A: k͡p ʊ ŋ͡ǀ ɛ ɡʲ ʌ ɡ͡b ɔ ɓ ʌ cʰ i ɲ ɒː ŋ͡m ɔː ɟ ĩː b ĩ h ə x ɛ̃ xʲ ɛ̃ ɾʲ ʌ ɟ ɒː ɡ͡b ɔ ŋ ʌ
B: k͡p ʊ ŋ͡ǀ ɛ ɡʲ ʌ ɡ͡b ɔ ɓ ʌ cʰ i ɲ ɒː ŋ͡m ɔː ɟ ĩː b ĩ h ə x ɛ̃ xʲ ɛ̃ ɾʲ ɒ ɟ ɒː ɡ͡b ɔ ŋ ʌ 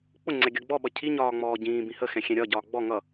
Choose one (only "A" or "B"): B